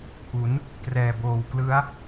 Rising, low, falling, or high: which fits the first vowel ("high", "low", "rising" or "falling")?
rising